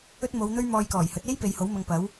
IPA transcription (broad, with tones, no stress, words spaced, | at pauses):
ɵ˥t̚mo˨˧wn̪ɵ˥ɥ mɔː˧jkɔː˨˩jhɵ˨˥t̚ e˥j pe˨jho˨˥wmɐ˧ŋpɐ˨˥w